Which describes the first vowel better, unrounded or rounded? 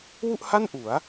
rounded